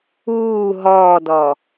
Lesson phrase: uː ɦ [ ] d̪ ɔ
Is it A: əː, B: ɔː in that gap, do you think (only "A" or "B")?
B